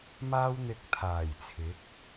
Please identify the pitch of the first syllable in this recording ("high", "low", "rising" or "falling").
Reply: high